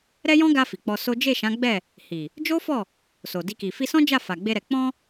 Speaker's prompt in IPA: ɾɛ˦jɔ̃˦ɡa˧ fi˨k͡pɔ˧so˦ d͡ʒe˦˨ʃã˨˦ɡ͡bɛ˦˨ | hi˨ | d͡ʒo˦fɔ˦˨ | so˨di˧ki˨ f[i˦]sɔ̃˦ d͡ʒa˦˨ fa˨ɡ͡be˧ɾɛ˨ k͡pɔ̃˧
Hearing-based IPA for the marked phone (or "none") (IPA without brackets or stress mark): i˧